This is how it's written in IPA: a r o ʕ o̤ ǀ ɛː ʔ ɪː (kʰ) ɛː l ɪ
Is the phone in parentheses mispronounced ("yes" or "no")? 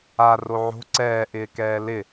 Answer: yes